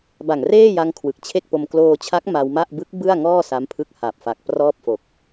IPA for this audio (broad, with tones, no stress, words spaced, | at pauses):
ba˨˩ŋreː˥˩ja˧ŋ kʰwɯ˨˩k̚t͡ɕʰe˥˩k̚po˧m kloː˧t͡ɕʰa˦˥k̚ ma˧wma˥˩ʔ bɯ˦˥k̚ bɯ˥˩a̯ŋɔː˥˩ sa˦˥mpʰɯ˦˥k̚ ha˨˩p̚fa˨˩k̚prɔː˥˩p̚fo˨˩k̚